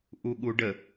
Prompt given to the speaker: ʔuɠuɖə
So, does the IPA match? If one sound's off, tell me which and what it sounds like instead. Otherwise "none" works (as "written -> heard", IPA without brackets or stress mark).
none